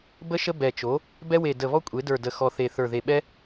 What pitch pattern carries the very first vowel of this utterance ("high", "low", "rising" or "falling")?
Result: high